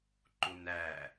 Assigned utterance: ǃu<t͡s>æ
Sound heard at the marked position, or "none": n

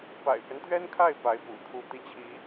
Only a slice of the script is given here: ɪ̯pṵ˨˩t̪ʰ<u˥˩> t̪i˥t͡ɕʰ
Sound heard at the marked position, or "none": u˥˩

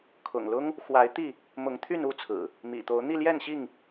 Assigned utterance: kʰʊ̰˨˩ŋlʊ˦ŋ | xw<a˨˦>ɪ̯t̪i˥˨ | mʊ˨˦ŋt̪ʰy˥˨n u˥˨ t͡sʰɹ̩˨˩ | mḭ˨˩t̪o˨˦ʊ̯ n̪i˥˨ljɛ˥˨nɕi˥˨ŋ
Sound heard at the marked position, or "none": a˨˦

